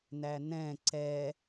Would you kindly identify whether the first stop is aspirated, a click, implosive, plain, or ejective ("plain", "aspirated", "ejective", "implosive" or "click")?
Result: click